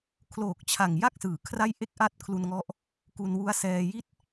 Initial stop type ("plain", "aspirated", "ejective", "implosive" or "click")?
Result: aspirated